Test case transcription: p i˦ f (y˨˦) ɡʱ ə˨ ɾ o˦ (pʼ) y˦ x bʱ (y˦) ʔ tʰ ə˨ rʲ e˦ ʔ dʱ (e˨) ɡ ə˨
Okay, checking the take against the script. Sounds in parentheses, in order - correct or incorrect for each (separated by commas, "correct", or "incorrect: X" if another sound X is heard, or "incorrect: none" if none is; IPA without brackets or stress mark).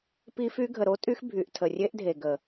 incorrect: y˦, incorrect: tʼ, incorrect: y˨, correct